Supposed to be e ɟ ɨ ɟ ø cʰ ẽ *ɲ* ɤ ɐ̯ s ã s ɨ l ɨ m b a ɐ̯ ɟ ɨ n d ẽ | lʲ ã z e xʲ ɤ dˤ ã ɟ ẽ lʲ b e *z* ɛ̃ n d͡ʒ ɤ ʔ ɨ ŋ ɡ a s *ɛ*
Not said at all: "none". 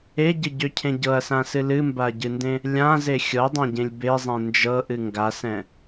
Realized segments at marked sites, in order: ɟ, zˤ, ɛ̃

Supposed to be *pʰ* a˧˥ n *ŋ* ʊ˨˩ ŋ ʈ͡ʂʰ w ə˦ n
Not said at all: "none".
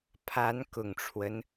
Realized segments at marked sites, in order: pʰ, k

